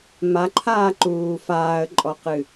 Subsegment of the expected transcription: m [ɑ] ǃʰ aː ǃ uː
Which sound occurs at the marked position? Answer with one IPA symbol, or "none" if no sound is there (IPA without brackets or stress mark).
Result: a